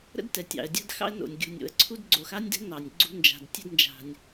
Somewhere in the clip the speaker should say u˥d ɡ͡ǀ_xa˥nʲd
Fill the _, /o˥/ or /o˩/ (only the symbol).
o˩